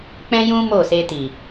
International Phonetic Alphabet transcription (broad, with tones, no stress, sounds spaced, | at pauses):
k͡p ɛ̃˦ j ũ˦ m o˦˨ s e˧ t i˨